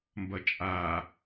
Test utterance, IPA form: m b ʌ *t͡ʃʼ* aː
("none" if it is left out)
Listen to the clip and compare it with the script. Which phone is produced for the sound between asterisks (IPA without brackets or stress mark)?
t͡ʃʼ